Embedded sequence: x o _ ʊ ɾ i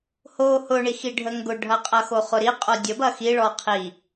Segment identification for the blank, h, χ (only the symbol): χ